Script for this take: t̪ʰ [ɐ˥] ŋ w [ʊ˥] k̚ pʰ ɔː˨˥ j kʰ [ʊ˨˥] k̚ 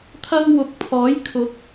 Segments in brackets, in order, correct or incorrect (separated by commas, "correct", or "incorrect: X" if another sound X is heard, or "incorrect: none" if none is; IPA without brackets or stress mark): correct, incorrect: ʊ˨˥, correct